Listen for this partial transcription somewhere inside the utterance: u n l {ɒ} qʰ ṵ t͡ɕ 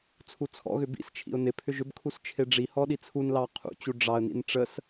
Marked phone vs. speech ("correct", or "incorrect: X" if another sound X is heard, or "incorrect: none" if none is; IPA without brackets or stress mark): incorrect: ɑ